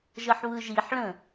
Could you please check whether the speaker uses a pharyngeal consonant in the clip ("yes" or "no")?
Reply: yes